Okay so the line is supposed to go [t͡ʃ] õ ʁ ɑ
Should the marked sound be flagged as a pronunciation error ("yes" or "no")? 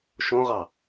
yes